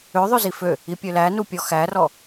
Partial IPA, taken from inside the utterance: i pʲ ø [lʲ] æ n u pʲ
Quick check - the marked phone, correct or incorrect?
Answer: incorrect